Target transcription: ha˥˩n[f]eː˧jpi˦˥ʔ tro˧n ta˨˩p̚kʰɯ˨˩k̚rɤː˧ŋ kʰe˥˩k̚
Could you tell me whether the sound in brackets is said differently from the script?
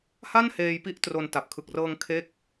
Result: yes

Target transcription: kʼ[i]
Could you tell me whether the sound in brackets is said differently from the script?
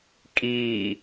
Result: yes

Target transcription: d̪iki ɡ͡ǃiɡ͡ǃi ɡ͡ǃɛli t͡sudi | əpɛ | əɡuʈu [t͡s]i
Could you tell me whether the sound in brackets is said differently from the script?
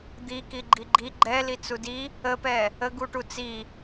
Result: no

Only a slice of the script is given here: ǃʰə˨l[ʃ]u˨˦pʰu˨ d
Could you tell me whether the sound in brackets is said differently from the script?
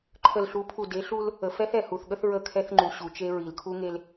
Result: yes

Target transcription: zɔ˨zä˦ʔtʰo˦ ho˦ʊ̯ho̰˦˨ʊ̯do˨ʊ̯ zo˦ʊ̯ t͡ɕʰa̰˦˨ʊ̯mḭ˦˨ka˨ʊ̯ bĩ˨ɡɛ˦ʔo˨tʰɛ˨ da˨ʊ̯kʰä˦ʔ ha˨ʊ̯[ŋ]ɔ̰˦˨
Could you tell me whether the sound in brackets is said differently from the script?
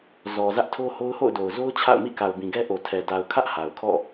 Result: yes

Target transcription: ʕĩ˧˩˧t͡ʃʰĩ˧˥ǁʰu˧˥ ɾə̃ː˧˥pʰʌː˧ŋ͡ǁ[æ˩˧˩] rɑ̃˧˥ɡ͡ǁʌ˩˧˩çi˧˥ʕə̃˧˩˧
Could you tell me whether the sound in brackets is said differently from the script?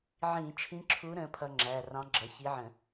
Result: no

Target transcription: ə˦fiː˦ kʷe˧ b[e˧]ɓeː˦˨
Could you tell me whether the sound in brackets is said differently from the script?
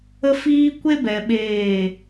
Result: yes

